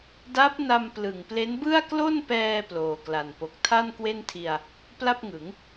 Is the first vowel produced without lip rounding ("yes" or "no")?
yes